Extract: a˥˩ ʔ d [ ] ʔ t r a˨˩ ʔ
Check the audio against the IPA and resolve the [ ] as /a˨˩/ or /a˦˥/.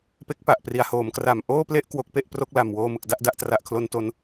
a˦˥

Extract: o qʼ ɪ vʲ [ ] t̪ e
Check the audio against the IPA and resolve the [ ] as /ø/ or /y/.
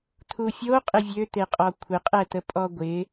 ø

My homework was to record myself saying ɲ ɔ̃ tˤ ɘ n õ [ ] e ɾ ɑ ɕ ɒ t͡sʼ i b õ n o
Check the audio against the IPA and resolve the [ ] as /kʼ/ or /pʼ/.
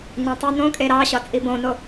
kʼ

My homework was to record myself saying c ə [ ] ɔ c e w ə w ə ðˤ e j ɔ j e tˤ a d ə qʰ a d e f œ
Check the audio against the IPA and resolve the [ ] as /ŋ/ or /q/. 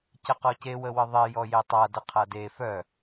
q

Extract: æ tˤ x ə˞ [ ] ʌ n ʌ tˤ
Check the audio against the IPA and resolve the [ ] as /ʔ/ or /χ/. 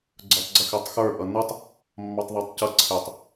ʔ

